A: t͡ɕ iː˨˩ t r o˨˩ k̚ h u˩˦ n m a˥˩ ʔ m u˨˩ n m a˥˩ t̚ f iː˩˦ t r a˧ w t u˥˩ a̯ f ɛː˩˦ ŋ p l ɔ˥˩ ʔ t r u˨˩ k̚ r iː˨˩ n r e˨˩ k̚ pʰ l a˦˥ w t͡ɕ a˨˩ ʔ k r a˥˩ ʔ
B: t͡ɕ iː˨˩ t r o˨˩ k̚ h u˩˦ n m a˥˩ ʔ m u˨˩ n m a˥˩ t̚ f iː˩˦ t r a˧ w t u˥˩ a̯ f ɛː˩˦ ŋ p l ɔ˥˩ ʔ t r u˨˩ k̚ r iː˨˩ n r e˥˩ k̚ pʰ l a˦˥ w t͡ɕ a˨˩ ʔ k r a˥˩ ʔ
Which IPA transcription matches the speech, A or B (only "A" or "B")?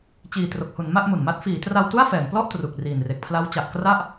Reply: A